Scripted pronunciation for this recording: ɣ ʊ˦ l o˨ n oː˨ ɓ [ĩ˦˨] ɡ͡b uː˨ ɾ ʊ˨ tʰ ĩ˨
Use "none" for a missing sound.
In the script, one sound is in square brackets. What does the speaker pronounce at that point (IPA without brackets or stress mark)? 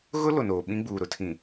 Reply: ĩ˦